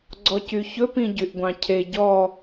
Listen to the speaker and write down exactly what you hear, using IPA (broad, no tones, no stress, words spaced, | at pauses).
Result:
ɡ͡ǀɔcyçɵ pĩɟyʔɡʷɑ̃cʰe ɟɔ